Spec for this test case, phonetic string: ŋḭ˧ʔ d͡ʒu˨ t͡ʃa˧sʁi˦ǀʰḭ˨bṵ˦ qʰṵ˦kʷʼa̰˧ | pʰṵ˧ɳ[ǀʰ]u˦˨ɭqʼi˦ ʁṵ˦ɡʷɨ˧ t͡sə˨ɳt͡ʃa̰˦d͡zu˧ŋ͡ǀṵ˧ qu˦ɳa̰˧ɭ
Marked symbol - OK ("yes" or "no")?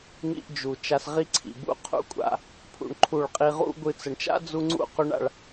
no